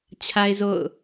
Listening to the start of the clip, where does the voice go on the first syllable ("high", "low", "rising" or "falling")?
high